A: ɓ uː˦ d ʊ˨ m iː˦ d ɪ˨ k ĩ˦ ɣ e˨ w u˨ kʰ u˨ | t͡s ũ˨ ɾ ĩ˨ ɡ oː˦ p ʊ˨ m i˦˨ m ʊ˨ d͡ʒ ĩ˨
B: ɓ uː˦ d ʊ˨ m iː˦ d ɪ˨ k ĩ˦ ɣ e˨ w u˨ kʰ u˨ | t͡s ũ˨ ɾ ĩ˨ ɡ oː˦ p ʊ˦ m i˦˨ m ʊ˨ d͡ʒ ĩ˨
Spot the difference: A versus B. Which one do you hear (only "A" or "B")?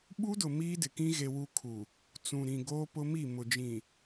B